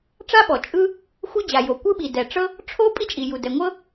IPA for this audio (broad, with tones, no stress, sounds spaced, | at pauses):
ʈ͡ʂ a˥ ɓ ɔ˩ t͡ʃʼ ɯ˥ | xʷ ɯ˥ d͡ʑ a˩ j o˩ kʷ ɯ˥ ɓ i˩ d ɛ˩ ʈ͡ʂ ɤ˥ | ʈ͡ʂʰ o˥ pʼ i˥ t͡ʃʼ i˩ j u˩ d ɛ˩ ŋʷ ɤ˥